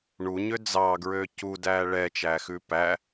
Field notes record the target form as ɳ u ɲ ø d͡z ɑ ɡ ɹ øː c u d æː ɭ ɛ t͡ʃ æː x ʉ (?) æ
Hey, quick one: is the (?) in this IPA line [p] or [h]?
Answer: p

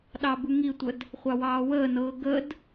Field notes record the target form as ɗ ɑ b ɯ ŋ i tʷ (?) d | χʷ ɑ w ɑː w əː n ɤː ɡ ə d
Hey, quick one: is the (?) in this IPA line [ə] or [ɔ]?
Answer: ə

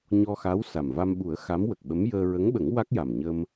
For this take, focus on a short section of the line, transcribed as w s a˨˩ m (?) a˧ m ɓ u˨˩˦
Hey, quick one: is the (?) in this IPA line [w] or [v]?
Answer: v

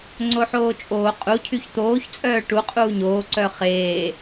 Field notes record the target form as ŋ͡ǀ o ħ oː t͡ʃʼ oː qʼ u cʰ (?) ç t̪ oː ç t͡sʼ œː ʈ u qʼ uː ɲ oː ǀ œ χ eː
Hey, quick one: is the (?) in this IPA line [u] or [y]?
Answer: y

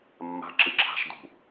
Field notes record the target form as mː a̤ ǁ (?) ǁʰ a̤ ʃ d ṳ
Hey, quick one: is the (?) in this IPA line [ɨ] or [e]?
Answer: ɨ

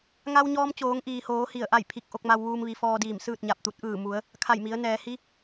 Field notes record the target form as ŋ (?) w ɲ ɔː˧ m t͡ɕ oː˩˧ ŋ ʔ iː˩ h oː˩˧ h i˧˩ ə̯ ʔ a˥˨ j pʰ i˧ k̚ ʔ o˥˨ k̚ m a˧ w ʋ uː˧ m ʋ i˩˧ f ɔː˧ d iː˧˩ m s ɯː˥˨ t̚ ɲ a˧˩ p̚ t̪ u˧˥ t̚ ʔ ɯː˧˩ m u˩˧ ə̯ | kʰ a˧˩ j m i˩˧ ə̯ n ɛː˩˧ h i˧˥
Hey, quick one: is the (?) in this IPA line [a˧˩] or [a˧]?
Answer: a˧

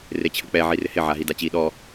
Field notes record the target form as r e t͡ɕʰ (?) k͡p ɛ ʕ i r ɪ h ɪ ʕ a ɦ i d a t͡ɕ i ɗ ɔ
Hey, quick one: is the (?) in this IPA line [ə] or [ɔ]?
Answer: ə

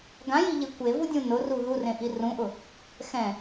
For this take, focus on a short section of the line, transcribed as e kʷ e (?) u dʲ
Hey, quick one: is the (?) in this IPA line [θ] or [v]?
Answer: v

